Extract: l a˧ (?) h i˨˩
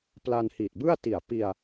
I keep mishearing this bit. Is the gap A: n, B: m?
A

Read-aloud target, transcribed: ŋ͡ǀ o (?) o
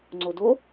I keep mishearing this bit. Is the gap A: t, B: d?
B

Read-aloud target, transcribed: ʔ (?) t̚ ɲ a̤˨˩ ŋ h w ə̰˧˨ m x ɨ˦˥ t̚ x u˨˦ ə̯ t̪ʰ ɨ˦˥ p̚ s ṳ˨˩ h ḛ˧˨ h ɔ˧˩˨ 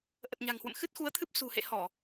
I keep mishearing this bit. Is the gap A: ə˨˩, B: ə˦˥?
A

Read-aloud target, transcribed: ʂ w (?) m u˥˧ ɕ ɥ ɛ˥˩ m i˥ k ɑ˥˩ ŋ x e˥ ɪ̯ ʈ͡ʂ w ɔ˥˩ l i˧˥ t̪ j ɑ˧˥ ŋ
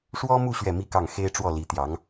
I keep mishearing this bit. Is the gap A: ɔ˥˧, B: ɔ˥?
B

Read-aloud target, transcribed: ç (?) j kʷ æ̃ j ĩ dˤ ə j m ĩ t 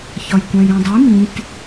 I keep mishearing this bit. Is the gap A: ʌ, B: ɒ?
B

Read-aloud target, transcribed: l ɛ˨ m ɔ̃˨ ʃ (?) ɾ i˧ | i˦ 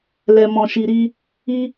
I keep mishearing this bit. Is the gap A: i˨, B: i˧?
A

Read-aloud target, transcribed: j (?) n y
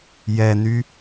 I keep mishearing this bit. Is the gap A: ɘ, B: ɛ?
B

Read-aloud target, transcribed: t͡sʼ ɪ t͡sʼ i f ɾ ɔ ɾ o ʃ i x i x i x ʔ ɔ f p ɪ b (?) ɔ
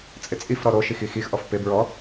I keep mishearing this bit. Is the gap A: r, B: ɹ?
B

